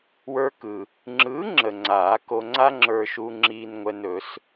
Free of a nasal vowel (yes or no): yes